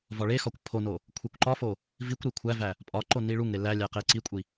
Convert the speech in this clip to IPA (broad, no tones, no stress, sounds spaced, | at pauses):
v ɒ ɭ e x ɒ kʷ pʰ o n o | kʷʰ e kʷ ǃ ɒ f o | v i kʷ ɾ i kʷʰ æ v æ | pʼ ɒ ǃ o n i ɭ u ŋ ɾ e l æ lʲ æ q e ǀ i kʷʼ i